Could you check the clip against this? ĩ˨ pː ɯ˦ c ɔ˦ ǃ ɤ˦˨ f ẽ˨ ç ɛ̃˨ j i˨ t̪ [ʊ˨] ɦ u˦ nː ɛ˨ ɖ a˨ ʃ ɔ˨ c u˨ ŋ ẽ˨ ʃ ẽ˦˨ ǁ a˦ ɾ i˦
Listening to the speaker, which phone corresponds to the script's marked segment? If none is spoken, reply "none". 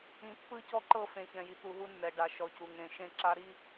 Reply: u˨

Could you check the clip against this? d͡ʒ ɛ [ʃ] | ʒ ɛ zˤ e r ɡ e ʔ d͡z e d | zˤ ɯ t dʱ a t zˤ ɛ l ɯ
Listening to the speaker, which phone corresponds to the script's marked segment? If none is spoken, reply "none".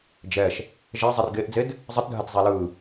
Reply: ʃ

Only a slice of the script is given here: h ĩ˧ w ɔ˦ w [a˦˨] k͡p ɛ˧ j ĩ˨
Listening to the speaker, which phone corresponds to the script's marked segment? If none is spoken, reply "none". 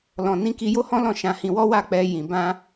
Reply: a˦˨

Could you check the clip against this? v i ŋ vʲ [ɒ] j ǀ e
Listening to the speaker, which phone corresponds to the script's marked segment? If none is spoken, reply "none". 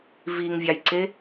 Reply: ɑ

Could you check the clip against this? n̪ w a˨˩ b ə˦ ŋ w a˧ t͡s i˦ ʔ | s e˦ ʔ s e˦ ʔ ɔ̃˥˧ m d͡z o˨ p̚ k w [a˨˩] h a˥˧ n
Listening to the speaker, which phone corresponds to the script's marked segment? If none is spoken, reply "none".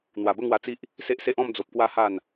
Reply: a˥˧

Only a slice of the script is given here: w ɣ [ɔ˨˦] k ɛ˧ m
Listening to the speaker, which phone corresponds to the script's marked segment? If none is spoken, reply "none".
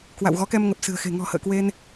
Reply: ɔ˨˦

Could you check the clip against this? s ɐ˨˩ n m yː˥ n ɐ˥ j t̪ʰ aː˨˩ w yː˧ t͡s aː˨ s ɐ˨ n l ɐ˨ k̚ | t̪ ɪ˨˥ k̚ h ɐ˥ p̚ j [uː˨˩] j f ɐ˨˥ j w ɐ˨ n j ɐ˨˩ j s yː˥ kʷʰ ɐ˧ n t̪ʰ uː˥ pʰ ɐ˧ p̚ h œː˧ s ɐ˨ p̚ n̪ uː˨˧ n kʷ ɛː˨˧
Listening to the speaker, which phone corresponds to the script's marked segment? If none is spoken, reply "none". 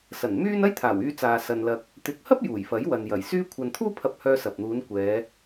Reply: uː˨˩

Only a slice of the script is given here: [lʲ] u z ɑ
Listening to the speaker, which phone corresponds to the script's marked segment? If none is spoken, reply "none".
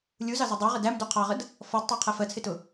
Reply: lʲ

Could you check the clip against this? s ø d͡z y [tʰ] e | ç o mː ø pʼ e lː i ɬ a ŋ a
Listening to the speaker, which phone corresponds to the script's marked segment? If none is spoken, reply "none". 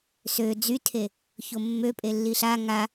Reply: tʰ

